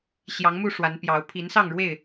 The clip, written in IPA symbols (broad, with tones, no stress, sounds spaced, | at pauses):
ɕ j ɑ˨˦ ŋ m u˥˨ ʂ w a˨˦ n p j ɑ˨˦ ʊ̯ pʰ i˨˦ n s ɑ˥˨ ŋ ɻ w e˥˨ ɪ̯